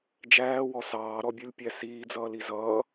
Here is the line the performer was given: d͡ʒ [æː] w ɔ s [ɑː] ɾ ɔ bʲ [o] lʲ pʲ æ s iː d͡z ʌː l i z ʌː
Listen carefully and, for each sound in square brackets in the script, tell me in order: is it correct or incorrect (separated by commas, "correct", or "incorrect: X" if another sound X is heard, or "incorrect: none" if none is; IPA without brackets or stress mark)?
correct, correct, incorrect: u